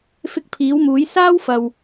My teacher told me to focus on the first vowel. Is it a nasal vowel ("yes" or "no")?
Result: no